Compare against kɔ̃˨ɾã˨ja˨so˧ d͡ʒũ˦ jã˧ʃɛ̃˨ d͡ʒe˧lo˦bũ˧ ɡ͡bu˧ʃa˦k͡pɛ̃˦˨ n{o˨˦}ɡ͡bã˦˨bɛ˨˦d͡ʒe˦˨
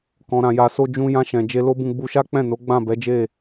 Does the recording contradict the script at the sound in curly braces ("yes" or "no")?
no